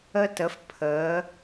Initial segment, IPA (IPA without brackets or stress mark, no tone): ə